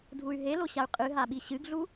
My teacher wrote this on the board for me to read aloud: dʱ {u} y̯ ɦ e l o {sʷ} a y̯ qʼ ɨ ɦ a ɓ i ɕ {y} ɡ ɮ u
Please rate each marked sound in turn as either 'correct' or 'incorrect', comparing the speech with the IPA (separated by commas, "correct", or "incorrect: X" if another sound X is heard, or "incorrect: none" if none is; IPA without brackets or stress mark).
correct, incorrect: ɕ, incorrect: ɨ